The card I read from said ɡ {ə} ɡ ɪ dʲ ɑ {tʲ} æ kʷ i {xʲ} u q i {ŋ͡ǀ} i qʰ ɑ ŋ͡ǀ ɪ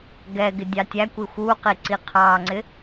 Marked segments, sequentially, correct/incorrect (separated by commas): incorrect, correct, incorrect, incorrect